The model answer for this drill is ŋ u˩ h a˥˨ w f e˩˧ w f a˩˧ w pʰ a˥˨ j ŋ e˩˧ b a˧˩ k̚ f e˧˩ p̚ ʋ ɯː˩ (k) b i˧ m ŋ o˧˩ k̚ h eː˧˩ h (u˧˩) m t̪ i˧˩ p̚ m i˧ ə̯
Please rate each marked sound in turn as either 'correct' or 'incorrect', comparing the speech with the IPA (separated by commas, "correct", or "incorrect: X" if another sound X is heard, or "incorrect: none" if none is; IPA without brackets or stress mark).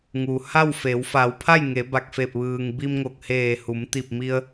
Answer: incorrect: ŋ, incorrect: u˩˧